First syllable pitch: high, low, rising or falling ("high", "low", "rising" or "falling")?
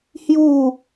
falling